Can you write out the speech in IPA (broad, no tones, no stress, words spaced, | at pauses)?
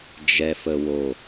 d͡ʒɛfəwo